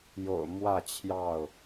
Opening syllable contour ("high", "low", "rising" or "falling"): low